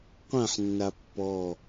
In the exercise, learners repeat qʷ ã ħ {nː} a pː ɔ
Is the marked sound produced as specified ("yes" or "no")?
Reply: yes